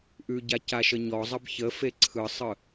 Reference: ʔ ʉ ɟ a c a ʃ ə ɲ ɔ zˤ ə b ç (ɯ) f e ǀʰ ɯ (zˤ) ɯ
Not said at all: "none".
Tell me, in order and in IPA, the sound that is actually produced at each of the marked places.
ə, sˤ

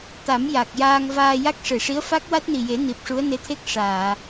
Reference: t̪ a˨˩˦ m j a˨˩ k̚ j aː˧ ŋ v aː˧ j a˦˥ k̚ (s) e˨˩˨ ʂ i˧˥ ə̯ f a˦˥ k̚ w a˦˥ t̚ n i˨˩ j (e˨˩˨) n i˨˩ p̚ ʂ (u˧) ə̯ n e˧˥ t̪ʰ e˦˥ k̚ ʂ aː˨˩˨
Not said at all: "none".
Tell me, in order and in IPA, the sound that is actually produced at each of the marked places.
ʂ, e˨˩˦, u˧˥

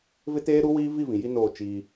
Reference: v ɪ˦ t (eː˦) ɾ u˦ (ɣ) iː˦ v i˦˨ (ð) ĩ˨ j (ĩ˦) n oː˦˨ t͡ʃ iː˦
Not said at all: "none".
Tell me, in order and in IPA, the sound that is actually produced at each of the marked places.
eː˦, w, v, i˦

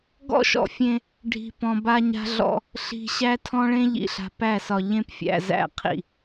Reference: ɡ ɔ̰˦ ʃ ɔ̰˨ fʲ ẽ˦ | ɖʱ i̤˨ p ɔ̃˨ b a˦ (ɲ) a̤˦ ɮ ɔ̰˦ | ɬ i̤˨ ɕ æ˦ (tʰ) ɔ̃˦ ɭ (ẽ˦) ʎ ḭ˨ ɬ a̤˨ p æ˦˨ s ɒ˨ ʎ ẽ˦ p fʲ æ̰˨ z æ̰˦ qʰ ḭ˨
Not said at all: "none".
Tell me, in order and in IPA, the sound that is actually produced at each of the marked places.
ɲ, tʰ, ẽ˦

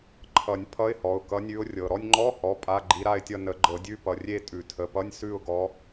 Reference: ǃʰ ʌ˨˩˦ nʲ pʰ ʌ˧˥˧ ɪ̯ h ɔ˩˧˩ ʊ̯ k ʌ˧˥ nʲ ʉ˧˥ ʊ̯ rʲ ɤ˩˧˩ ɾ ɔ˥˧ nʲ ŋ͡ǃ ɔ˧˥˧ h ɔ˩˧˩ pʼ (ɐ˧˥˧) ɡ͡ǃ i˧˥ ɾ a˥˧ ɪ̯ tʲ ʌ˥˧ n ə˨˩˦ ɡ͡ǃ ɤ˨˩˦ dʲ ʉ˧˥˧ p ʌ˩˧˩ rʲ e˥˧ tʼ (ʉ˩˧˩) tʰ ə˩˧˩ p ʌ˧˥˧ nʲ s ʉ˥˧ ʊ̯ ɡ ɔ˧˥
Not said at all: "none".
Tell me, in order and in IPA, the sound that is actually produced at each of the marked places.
a˧˥˧, ʉ˨˩˦

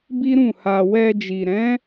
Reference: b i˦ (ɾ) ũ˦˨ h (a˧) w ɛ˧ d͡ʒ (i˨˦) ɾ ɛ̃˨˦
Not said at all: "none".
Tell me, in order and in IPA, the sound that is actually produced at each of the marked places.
ɾ, a˧, i˨

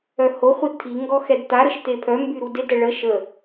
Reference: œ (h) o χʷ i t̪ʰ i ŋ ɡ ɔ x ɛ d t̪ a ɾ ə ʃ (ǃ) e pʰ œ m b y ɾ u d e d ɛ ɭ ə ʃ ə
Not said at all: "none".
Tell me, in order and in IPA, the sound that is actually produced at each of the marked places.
h, t̪

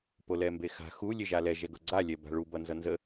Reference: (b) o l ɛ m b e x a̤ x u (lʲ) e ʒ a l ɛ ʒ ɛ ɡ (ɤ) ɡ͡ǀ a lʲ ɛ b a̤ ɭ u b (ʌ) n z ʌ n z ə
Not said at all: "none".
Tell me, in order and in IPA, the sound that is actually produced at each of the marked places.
p, lʲ, ɤ, ʌ

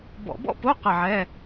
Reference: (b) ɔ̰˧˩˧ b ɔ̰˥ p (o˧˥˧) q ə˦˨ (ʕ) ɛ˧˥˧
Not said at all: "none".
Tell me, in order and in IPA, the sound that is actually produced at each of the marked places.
b, o˧˥˧, ʕ

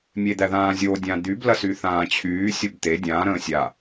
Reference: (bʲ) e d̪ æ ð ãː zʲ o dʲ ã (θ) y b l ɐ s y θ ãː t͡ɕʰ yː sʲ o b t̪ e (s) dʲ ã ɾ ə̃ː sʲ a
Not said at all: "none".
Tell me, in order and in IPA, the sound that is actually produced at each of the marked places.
mʲ, d̪, none

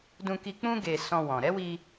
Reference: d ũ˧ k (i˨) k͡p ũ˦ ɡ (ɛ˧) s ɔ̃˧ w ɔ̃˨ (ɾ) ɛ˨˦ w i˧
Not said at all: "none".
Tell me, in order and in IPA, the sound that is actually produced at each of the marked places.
i˧, e˧, ɾ

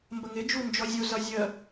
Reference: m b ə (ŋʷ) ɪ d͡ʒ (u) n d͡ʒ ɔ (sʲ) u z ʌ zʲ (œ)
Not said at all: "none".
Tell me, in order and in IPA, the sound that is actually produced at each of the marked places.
ŋ, u, zʲ, ə

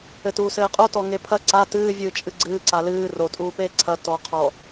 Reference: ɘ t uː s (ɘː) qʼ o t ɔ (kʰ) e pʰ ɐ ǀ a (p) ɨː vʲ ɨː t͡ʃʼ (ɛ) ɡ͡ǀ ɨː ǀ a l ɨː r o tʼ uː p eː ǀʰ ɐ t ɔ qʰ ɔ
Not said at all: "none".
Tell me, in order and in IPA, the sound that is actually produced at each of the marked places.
ɘː, ŋ, t, ɨ

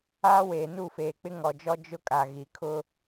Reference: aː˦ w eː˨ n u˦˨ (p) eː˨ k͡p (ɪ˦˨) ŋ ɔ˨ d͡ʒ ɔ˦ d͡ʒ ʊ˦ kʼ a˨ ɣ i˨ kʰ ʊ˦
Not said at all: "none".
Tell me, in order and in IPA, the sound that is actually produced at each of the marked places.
f, ɪ˦

